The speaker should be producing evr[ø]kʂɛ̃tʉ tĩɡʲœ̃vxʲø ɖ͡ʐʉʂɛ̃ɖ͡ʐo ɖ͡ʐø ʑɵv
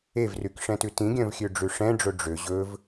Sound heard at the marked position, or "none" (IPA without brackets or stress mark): y